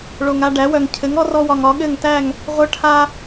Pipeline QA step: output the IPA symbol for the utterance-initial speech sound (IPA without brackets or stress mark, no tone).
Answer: ɭ